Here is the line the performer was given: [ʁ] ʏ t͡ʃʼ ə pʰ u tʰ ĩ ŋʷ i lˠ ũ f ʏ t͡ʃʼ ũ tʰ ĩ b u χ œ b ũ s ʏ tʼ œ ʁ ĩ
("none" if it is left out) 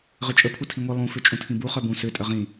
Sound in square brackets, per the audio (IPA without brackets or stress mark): ʁ